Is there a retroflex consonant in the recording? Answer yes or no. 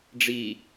yes